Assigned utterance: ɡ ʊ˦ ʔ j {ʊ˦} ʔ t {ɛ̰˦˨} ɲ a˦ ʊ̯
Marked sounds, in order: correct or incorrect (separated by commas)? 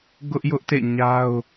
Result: correct, incorrect